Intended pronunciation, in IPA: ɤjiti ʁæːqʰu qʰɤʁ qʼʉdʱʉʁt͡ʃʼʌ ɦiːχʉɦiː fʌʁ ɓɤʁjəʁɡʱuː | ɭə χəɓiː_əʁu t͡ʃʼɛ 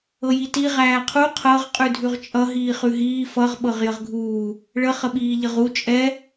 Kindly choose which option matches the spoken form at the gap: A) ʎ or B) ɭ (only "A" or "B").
A